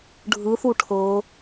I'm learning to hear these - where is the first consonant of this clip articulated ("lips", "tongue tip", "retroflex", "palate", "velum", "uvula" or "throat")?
retroflex